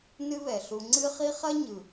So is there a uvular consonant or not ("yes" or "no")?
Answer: yes